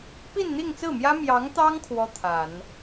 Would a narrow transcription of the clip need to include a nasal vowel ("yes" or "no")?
no